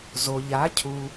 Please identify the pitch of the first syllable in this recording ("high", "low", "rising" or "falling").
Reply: low